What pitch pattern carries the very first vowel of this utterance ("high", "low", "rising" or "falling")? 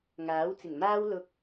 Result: rising